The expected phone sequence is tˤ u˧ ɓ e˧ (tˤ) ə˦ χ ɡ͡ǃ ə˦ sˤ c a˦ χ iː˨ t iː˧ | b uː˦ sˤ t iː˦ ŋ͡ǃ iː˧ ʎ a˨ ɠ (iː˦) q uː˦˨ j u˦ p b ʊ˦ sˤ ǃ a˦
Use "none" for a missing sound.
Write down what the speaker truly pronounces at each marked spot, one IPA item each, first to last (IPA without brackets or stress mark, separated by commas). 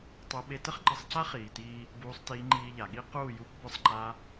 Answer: t, i˦